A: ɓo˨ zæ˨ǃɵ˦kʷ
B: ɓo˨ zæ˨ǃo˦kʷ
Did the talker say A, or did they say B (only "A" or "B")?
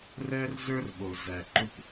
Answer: A